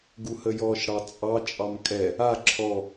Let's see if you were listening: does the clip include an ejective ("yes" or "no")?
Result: yes